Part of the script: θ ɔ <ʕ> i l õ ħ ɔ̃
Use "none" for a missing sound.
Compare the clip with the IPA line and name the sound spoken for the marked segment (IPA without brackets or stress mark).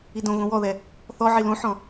ʕ